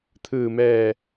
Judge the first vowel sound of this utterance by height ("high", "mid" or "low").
high